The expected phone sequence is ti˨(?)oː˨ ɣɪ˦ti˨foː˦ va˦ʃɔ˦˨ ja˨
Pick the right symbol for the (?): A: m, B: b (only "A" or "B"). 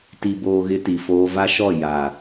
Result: B